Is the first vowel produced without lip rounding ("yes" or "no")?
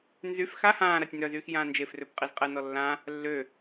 no